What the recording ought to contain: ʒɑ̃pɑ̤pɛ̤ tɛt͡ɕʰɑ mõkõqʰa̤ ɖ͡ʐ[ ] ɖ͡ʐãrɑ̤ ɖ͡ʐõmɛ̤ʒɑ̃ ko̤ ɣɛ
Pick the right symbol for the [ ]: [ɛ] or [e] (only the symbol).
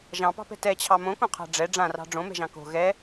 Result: ɛ